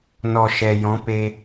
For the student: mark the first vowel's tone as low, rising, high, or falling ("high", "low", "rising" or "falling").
low